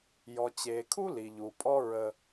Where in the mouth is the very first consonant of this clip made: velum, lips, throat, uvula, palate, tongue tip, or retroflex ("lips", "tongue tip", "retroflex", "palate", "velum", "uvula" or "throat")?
palate